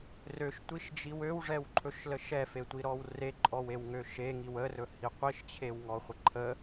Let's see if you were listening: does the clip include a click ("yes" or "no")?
yes